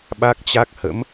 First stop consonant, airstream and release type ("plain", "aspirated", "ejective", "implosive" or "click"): implosive